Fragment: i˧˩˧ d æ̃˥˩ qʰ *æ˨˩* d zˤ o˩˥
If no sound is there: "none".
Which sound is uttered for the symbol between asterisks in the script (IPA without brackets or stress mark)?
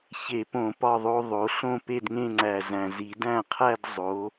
æ˥˧